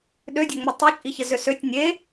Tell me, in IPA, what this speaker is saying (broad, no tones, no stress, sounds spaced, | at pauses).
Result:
ɗ ø dʲ ø ŋ͡m ə tˤ e t͡ʃʼ i ç ə z ø s ø tʲ nʲ e